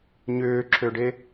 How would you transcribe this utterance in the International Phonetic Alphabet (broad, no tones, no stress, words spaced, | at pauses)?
ɲʏːǁʰøɖe